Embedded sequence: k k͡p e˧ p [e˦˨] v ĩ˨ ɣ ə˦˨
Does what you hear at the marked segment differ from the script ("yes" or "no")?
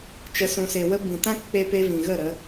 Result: yes